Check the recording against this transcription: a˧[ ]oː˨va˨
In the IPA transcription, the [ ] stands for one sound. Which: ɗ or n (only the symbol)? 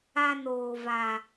n